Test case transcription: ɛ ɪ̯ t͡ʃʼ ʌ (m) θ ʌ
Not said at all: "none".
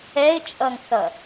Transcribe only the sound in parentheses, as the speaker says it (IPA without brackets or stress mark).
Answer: ŋ